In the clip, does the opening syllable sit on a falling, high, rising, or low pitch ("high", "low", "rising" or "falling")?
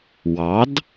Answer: rising